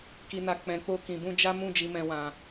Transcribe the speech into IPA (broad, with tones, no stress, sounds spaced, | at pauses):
k i˨ n a˨ k͡p ɛ̃˨ k͡p o˧ k ĩ˨ b ũ˧ d͡ʒ a˦ m ũ˦˨ d͡ʒ i˨ m ɛ̃˨ w ã˨